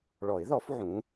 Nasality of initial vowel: oral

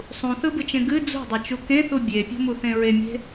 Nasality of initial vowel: nasal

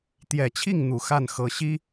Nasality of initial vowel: oral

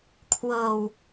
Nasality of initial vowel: oral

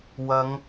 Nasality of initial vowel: oral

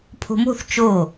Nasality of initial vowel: oral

